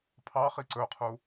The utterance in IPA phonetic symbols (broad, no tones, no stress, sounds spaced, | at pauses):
pʰ ɑ χ i ǀ ɵ qʰ u